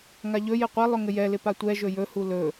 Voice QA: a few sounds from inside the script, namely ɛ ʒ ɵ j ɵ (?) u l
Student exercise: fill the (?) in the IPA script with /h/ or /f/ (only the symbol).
h